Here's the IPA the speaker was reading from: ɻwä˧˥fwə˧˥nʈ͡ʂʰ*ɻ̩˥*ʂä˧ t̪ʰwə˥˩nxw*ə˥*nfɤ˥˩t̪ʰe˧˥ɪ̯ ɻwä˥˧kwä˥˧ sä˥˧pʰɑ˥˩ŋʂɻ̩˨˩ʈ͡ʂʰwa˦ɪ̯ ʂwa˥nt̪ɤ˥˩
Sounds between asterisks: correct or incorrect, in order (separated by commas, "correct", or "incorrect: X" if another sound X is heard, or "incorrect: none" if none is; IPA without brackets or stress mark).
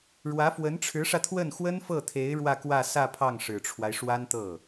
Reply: incorrect: ɻ̩˧˥, correct